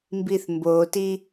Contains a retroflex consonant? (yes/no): no